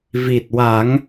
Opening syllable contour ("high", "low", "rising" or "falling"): low